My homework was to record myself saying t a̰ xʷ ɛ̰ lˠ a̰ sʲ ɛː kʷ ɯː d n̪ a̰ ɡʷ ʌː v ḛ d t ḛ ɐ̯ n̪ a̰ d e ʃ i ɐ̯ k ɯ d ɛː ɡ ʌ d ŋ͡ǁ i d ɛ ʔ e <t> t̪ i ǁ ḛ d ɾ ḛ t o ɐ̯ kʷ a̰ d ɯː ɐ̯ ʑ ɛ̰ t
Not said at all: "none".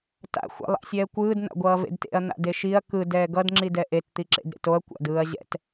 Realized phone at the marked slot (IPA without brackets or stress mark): t